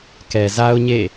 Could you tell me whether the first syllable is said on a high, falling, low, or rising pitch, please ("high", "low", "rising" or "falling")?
low